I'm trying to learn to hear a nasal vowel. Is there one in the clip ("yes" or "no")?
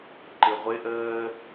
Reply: no